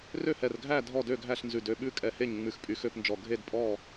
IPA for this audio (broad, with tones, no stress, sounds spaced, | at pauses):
r ø˥˨ h ɛ˧˩ r ɡʱ æ˥˨ dʱ ɔ˥˨ d ø˥˨ ɡʱ æ˥˨ ɬ n z ʉ˧˩ d ø˥˨ ɓ ʉ˥˨ kʼ ɛ˧˩ h e˥˨ ɲ ŋ͡m ʉ˧˩ x pʼ y˧˩ x ø˥˨ p n d͡ʒ ɔ˧˩ ɡʱ e˥˨ d pʼ ɔ˥˨